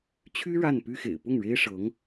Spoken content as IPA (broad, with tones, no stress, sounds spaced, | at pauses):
t͡ɕʰ y˥ ɻ a˥˩ n p y˥ x ḛ˨˩ ɪ̯ p ʊ˥˩ ŋ ɻ e˥ ɪ̯ ʂ ɤ˧˥ ŋ